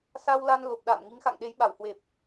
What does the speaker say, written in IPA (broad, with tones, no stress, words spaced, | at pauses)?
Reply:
sa˧wla˧n lo˨˩p̚ɗa̰ː˧˨m ŋi˨˦ŋxa̰˧˨ŋɗe˨˦j ɓa˧˩whwe˨˩p̚